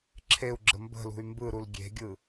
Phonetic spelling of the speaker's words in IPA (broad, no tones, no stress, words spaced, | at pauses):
ǁʰeu̯ɡ͡ǁə mbə̤lṳy̯ mbɯɾul ɡʲe̤ɡʲɯ